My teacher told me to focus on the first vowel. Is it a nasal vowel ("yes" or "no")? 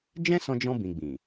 yes